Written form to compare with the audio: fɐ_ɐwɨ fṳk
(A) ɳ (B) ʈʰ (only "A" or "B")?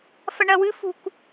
A